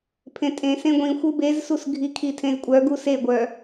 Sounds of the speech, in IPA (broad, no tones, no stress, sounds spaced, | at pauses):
pʰ ẽ tʼ ẽ s ẽ ɡʷ ĩ xʷ ɯ b e z s u s ɡʱ i kʰ i tʰ ẽ z kʷʼ œ ɡ u s e ɡʷ œ